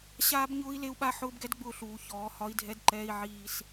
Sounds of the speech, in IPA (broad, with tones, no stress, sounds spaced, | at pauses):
ɕ aː˦ b ɲ ʊː˦ i̯ l e˦ u̯ ɓ a˦ ħ ʊː˦ b ɡ ɛ˦ d ɡ͡b ʊː˦˨ ɬ uː˨ ç ɔː˨˦ h ɒ˦ i̯ dʱ ɛ˦ d ǃ ɛː˦ i̯ ʕ iː˦ s